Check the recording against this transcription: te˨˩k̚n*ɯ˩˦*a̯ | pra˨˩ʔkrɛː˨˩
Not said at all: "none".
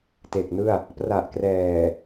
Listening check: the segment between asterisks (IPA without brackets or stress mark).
ɯ˥˩